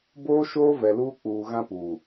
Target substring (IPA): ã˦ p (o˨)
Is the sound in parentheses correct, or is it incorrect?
incorrect